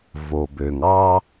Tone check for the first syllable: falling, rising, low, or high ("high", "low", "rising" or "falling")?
low